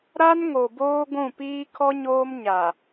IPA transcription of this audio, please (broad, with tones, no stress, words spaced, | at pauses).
ɾa˦nŋo˨boː˦ ɡʷũ˦˨ piː˦kʰɔ˦ɲoː˦m ɲa˨